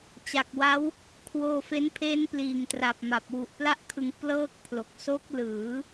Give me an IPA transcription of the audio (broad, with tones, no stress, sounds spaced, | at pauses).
t͡ɕ a˨˩ k̚ w a˦˥ w | kʰ w oː˧ f e˦˥ n pʰ e˦˥ n p l iː˨˩ ŋ t r a˨˩ p̚ m a˨˩ p̚ w u˨˩ ʔ p l a˥˩ ʔ kʰ ɯ˧ ŋ p l ɤː˥˩ k̚ pʰ l o˨˩ k̚ s o˦˥ k̚ l ɯː˩˦